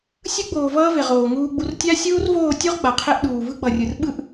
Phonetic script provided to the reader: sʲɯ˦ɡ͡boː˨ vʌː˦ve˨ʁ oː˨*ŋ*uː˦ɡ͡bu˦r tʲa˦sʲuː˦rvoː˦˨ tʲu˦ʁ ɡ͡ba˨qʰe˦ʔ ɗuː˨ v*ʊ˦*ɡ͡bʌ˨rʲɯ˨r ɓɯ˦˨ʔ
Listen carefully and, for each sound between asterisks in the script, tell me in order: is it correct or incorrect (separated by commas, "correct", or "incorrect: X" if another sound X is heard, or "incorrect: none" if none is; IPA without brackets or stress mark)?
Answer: correct, incorrect: ɯ˦